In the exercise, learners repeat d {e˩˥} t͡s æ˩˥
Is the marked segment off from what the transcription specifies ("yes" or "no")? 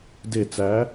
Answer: yes